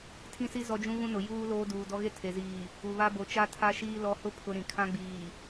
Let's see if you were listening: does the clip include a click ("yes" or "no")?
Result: no